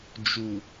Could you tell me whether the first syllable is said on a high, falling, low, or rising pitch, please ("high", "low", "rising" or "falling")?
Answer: low